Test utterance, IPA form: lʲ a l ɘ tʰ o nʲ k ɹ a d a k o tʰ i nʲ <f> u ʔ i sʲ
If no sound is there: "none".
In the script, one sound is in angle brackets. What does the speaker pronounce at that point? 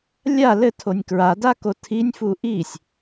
f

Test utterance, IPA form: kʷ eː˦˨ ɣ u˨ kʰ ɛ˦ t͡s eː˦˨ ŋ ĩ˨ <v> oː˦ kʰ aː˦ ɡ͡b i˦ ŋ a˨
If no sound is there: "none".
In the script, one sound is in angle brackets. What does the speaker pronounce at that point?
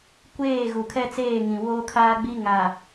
w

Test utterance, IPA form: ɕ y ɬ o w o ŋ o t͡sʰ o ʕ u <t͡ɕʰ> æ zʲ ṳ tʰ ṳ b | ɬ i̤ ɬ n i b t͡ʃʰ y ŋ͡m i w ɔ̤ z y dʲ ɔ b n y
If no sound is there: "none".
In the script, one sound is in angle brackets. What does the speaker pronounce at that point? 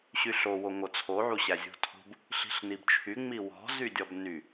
ɕ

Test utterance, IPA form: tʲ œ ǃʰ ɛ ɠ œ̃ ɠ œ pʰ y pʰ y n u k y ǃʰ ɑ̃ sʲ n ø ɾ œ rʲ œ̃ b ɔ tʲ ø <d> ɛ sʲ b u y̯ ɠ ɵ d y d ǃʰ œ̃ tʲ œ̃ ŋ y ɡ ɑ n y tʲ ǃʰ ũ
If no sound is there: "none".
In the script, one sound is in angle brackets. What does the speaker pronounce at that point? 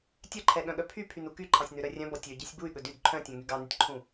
ɟ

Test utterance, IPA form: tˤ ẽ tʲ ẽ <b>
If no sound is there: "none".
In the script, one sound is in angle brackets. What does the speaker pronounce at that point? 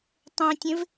v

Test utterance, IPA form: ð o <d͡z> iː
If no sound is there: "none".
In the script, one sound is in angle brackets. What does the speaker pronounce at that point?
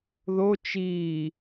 t͡ʃ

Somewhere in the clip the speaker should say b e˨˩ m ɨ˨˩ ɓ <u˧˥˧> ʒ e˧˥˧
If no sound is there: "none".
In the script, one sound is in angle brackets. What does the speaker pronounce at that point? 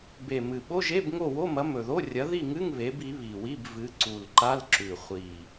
o˧˥˧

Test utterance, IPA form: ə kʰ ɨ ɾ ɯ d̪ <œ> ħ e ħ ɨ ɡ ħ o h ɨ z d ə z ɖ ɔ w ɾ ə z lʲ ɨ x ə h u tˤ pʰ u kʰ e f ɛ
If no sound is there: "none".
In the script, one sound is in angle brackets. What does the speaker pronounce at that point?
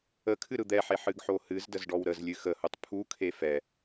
ɛ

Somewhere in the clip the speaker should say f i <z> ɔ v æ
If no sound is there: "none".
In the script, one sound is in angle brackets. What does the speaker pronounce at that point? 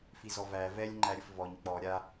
z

